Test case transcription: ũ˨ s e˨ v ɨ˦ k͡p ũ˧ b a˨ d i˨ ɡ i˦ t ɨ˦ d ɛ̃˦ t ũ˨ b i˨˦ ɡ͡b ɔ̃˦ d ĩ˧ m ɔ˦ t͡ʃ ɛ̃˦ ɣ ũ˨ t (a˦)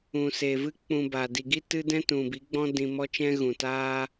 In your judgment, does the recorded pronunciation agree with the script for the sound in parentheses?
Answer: no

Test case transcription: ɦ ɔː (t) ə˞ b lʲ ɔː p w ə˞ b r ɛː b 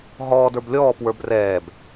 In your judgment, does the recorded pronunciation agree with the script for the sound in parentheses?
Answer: no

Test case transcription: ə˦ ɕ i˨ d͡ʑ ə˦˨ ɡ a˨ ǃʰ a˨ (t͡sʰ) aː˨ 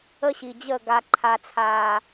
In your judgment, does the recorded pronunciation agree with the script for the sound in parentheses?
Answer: yes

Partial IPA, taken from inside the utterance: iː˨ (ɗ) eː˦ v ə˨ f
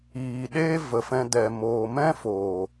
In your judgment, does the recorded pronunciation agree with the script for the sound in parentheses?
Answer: yes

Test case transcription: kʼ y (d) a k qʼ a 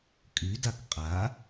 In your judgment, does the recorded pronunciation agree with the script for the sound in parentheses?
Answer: yes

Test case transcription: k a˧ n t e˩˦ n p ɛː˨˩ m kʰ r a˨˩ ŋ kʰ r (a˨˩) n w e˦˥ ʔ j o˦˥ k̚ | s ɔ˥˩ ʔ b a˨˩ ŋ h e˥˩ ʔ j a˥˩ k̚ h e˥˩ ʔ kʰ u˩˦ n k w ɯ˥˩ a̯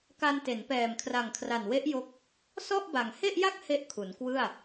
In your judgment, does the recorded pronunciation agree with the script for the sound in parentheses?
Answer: yes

